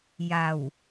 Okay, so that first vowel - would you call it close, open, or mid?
open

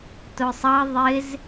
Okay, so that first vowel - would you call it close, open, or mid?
close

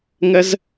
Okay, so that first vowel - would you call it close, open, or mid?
mid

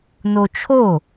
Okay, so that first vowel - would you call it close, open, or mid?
mid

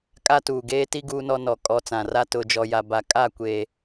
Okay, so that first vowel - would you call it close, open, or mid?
open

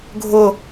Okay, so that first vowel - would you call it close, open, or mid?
close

